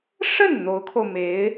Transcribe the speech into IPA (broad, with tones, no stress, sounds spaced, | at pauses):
ʂ ə˥˩ n n̪ o˧˥ ʊ̯ kʰ o˧ ʊ̯ m e˧˥ ɪ̯